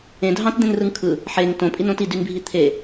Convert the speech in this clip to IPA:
ẽ dʱɑ̃td̪ẽnrɯŋ kʰɯ | ħeŋ tõpʼinõt idynbʱi t̪ʰe

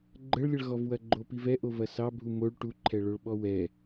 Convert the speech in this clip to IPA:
ɡ͡ǃəɭlʲəɭɣɔvwɐ ɡ͡ǃopivɛ ʔovɐsɑbʱu moɭ ʈuǃʰɛɭoɭɓɔ wɛ

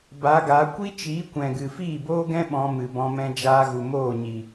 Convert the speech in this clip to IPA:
ba˨˦ɡa˨˦ kʷi˦t͡ʃiː˨˦kʷɛ̃˨ ɡɨ˨fiː˦˨boː˦ɡɛ̃˦ ɓɔ̃˧ mɨ˨bɔ̃˧ mɛ̃˧d͡ʒaː˧ɣu˨ moː˦˨ɲi˨

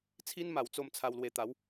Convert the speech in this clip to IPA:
t͡sʰi˦nma˨˩w t͡so˥˧mt͡sʰa˧wlwe˧ t̪a˨˦w

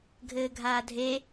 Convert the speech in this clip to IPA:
ɡʱɘːɡʱaːdʱe

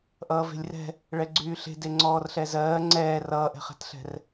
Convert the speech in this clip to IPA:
ʔʌːve̤lʲrɛ̤ | ɭɛɡ͡ǀyːɬe̤ deŋ͡ǀɔːrɬɛzɜː ŋ͡ǀɛː rʌːʔɛ̤χɛ̤tɬɛ̤r

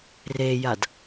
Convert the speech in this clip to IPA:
rejad

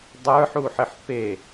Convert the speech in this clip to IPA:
dˤə˞ħuħɘħ pe

